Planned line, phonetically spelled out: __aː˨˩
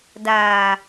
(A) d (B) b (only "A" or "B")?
A